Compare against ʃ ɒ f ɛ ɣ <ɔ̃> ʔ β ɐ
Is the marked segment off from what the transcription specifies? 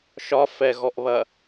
yes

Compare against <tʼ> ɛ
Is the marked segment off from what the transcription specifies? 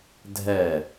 yes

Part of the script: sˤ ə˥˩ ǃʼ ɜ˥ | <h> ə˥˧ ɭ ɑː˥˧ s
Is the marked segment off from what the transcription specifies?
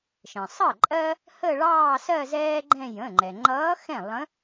no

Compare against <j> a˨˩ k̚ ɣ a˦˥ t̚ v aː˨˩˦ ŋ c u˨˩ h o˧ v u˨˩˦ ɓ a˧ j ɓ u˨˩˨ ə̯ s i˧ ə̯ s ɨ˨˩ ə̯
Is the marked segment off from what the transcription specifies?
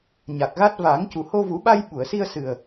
yes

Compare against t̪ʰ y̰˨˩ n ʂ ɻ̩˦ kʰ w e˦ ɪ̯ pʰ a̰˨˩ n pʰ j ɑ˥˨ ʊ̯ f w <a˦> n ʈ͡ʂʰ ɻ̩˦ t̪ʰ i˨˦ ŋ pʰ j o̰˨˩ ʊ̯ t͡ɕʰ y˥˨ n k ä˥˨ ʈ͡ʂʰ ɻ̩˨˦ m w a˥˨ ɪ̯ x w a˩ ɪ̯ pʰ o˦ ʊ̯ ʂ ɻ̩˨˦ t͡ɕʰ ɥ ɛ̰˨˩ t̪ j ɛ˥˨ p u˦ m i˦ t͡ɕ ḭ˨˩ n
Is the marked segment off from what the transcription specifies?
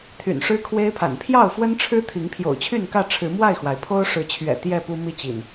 yes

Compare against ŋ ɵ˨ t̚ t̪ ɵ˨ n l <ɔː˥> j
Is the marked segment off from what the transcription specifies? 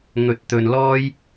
no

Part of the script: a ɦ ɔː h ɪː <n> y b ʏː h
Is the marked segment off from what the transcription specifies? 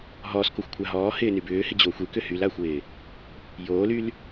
no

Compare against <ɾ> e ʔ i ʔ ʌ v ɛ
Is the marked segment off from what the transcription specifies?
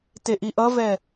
yes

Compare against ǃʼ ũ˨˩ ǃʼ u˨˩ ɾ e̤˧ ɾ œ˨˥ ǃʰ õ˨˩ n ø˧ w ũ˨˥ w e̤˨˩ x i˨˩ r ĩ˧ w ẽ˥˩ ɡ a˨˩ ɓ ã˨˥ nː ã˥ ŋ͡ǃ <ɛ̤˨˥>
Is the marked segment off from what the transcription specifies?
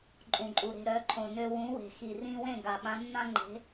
yes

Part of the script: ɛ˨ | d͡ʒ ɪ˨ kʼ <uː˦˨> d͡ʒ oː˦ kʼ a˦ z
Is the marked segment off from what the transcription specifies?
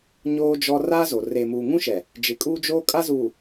yes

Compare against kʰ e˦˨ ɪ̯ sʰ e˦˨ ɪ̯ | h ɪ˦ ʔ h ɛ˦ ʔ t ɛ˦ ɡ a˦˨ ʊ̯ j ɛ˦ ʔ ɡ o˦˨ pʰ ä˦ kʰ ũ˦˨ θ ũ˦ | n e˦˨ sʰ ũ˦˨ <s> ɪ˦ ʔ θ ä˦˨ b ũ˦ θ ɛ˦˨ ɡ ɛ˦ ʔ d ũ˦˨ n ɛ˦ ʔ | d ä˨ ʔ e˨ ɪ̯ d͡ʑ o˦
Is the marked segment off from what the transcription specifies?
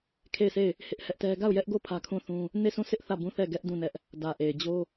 no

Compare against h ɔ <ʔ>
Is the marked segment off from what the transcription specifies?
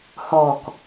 yes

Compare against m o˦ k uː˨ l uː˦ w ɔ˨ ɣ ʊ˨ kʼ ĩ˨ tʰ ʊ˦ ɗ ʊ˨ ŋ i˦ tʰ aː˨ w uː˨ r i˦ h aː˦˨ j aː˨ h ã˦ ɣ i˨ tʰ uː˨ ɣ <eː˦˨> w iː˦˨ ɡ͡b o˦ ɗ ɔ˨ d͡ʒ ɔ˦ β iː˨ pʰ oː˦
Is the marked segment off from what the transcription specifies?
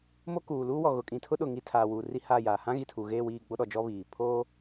no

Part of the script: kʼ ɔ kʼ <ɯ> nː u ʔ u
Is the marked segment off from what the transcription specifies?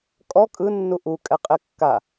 no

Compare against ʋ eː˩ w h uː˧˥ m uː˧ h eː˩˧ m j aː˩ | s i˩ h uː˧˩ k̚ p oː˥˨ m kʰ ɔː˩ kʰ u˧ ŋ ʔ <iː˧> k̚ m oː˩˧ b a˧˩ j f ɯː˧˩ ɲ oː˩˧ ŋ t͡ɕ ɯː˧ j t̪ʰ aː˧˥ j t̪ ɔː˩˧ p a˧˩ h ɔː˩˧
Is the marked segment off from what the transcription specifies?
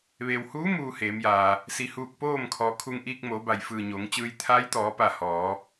no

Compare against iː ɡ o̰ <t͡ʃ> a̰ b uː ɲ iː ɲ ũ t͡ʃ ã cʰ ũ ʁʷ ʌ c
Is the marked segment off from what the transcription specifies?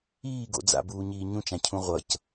yes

